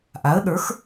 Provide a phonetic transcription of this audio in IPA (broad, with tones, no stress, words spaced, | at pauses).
ʔa˩˥ə̯ɗə˞˩˥x